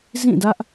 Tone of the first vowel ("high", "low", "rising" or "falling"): falling